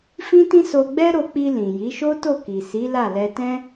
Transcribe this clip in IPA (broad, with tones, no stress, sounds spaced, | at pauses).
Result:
f ĩ˦ t ĩ˦ s o˧ ɡ͡b ɛ˦ ɾ o˧ k͡p i˧ l ĩ˨ j i˨˦ ʃ o˦ t o˦˨ k i˨ s i˨˦ l a˦˨ l ɛ˧ t ɛ̃˦